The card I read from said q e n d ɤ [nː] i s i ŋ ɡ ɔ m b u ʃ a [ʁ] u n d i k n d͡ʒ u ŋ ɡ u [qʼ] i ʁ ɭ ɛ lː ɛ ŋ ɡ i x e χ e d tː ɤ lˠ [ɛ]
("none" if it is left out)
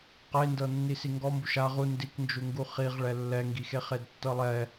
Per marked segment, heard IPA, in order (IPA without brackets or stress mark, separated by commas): nː, ʁ, χ, ɛ